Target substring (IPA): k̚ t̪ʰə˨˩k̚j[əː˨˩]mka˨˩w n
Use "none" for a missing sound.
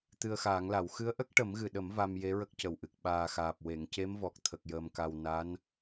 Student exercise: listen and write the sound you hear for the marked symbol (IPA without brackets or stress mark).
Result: əː˨˩